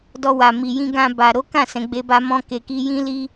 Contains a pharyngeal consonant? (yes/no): no